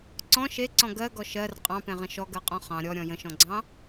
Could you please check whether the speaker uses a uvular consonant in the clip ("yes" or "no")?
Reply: yes